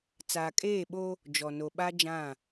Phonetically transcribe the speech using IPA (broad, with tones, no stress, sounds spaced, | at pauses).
t͡s aː˨ kʼ eː˦˨ ɓ o˦ | d͡ʒ ɔ˨ n o˨ ɓ a˦ d͡ʒ ã˦˨